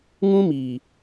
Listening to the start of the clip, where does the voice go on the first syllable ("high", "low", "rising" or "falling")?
high